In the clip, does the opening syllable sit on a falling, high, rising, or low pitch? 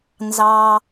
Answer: low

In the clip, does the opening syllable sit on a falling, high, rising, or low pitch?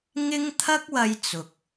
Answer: high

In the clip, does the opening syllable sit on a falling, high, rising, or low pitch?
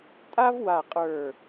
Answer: high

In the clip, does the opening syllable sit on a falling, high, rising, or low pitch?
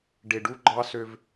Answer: low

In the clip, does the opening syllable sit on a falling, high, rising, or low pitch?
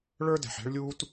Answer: high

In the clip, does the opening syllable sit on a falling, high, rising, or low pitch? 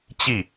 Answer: falling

